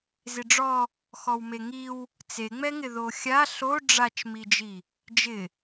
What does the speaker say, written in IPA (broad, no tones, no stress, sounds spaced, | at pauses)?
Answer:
z ɪ ɖ͡ʐ ɔ | x ɔ w m e ŋ i w | t͡s e ŋ͡m ɛ ŋ ɪ ð o xʲ a ɬ o ɖ͡ʐ a t͡ʃ m i d͡ʒ i | d͡ʒ ɪ